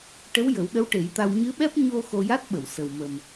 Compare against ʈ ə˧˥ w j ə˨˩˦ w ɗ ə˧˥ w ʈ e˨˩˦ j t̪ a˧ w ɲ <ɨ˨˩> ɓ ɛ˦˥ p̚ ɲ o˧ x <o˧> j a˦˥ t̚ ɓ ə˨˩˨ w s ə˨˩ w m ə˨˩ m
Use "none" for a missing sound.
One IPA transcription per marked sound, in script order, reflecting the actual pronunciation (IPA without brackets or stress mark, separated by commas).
ɨ˧˥, o˧